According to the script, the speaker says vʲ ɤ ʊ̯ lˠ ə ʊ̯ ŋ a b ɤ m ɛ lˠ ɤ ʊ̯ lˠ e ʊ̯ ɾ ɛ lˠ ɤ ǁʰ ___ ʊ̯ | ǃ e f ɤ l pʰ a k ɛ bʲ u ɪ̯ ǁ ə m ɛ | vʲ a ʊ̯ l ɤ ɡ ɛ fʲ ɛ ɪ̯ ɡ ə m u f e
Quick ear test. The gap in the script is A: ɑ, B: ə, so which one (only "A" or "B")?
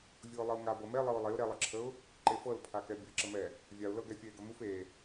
B